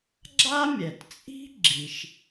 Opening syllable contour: high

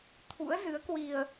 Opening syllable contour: rising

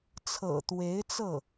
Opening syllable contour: low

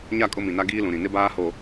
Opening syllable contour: falling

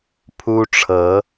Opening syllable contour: high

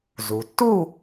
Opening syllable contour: low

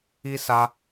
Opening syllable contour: high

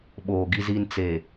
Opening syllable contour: low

